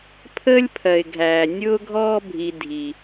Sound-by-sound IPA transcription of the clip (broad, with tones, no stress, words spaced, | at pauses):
pʰəː˦lʲ pʰɜ˩ɪ̯ɡʱæː˩ nʲʊː˦ɡʱɔː˦bʱi˨ dʱi˩